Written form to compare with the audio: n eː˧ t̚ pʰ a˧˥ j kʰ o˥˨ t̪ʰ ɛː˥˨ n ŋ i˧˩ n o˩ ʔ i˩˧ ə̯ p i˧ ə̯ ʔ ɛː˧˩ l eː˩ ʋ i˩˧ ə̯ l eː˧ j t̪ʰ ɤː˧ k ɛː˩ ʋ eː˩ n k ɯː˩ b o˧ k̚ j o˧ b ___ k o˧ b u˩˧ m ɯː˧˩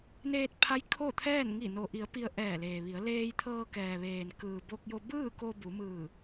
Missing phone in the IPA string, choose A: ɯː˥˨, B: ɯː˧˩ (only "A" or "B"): A